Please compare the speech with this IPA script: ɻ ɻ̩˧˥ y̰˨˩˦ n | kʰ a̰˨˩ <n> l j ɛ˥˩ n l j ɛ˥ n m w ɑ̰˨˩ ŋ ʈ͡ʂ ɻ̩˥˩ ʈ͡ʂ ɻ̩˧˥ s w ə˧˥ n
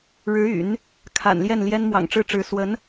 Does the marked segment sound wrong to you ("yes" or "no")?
no